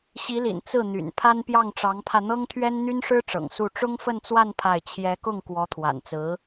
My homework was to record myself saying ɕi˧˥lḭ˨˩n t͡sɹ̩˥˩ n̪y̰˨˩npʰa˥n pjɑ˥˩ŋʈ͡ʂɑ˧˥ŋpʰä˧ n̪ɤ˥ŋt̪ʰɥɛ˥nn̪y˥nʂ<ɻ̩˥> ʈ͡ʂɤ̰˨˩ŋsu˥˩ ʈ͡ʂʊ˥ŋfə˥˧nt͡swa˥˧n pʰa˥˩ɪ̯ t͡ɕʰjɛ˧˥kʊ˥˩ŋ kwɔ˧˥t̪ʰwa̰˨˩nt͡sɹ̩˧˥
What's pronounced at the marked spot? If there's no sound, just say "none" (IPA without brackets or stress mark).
ɻ̩˥